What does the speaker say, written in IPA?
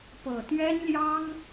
pɤ˨˩t̪ɥɛ˥nljɑ˥ŋ

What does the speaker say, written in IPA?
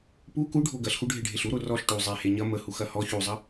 pu kuɖʱo ɡɐɬxuɖʱeɖʱeɬ uɾo rɔɬ ʈu zˤehe ɲɐ məhuxɐ hɔ çuzˤɐ

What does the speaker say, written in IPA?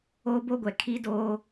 oː˦bo˦ɡʷɛ˨ kʰi˦doː˦

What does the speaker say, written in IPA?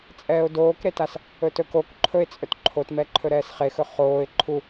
t͡sʼɛːʊ̯doːkɾetas | ɵtɵk ok ǃʰɵɪ̯t͡sʼɵt ǃʰotmɛ ǃʰɵɾɛːsχexɵ χoːɪ̯ ǃʰu

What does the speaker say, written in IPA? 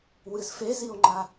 wɨzfezio̯ŋ͡ǃa

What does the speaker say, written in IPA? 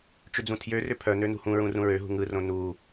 t͡ʃʏd͡zũtʰjørʏ pʰœnø nṳhũɹũ rũɹøɦṳ ŋɯrõ nu

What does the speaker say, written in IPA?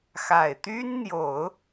xa˨˩ɪ̯t̪y˥nn̪jo˨˩˦ʊ̯

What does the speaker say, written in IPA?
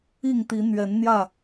i˥˨ŋt̪i˨˦ n̪ɥɛ˨˦nn̪jä˥˨

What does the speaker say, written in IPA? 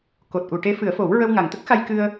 ko˨˩t̚ʔu˨˩˨ʈe˧˥ fɨ˨˩˦ə̯fo˨˩˦w ɹə˧wŋa˨˩ŋt̪ə˦˥k̚xa˧j kɨ˧ə̯

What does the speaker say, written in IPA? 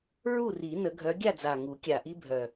ɹu˥˨ri˨˩˦ nə˨˩˦ɡʱœ˨˦ɡʲa˥˨d͡za˨˩ ŋu˨˩˦kʲa˨˩ʔi˦bʱœ˨˩

